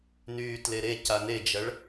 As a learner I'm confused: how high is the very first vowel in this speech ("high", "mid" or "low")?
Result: high